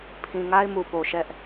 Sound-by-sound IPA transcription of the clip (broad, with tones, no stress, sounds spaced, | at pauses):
pʰ ĩ˨ ŋ a˦ ɪ̯ m u˨ p o˨ ʃ ɛ˦ ʔ